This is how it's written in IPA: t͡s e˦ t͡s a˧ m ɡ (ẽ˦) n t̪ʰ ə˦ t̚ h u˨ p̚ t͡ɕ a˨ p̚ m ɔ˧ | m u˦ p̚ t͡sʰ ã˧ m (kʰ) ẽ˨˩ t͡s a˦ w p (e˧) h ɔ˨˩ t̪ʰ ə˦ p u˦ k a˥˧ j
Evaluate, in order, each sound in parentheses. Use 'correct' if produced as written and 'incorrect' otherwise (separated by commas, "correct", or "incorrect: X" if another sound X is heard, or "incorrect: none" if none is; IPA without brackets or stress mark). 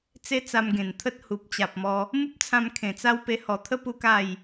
incorrect: ẽ˨˩, correct, correct